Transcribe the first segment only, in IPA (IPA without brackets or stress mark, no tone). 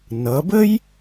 n